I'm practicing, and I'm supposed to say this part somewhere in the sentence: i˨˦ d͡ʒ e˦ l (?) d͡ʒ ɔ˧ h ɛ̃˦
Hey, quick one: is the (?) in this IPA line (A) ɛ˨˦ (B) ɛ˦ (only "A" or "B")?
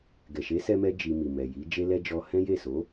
B